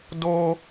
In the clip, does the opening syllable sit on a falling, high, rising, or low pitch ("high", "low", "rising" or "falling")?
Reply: high